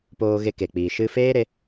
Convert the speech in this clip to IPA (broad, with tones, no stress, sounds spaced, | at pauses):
p oː˧ ɣ e˧ k e˨ k͡p iː˨ ʃ ɨ˧ f eː˦ ɾ e˧